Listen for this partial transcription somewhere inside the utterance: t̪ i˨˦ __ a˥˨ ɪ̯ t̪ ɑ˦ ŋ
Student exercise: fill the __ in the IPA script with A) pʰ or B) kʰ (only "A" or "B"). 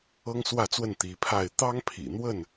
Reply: A